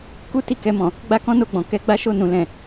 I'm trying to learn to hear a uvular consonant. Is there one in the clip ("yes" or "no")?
no